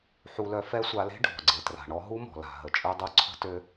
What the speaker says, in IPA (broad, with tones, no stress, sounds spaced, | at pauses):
ħ u˧ l œ˧ f ɛ˥ sʷ a˧ l e̤˥ ɖʱ ɔ̤˩ ɡ͡ǀ e˩ t r a̤˩ ɳ ɔ˧ ɦ u˥ m ɔ̤˩ l a̤˩ ɦ ə˩ t͡ʃʼ ø˧ dˤ u˧ ǀʰ ə̤˧ t ø˧